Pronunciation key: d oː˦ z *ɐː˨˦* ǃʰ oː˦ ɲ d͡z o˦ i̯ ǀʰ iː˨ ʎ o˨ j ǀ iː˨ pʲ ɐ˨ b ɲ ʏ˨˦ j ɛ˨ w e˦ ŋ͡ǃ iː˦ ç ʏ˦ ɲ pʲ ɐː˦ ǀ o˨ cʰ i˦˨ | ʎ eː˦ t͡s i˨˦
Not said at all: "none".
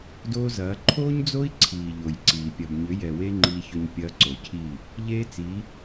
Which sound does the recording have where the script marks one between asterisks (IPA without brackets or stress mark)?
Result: ɐː˨˦